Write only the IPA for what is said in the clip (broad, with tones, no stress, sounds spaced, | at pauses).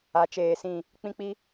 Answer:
a˨˦ t͡ʃ eː˨ s ĩ˦˨ | k͡p ĩ˦ k͡p i˦